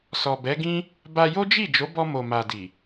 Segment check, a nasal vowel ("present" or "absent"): present